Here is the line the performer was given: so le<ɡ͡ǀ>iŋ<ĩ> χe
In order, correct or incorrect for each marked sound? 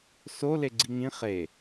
correct, correct

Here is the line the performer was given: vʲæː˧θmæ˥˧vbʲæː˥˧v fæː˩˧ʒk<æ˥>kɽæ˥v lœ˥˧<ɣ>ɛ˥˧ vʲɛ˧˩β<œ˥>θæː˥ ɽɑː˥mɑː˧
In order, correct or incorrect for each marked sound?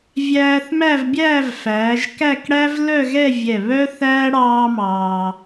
incorrect: æ˥˧, correct, correct

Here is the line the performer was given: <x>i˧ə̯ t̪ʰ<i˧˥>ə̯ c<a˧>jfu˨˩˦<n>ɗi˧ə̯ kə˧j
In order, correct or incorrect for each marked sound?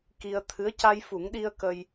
incorrect: k, incorrect: ɨ˧˥, correct, incorrect: ŋ

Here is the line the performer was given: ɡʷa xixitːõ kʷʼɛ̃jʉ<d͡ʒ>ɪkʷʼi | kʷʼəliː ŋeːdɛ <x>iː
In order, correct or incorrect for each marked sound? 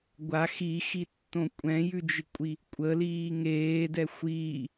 correct, incorrect: xʷ

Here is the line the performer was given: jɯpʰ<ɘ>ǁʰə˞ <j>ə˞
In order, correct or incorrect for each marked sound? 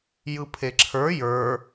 incorrect: e, correct

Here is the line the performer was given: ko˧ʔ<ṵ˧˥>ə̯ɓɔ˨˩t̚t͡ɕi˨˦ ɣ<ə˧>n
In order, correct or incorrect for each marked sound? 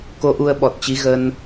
incorrect: u˧, correct

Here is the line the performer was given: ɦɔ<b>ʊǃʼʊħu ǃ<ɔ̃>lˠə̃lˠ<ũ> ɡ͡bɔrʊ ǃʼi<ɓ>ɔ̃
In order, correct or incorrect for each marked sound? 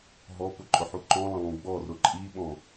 incorrect: p, correct, correct, correct

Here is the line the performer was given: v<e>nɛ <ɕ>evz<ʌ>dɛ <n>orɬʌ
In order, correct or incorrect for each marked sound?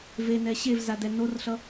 correct, correct, incorrect: a, correct

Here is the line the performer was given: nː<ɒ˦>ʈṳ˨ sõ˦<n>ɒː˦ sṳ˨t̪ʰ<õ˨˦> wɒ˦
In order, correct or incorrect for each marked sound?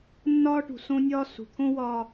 incorrect: ɒː˦, incorrect: nʲ, incorrect: õ˦

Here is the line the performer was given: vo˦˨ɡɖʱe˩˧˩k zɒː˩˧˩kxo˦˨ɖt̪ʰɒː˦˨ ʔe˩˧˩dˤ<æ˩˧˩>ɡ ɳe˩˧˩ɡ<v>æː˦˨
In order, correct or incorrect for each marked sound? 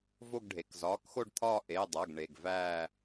correct, correct

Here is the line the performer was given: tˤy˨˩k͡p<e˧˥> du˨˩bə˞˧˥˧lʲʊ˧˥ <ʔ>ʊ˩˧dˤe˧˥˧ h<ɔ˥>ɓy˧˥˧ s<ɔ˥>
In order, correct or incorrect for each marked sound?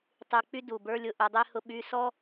incorrect: y˧˥, correct, incorrect: ʊ˥, correct

